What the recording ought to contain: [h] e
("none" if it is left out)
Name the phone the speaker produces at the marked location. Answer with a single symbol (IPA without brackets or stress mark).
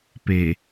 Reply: p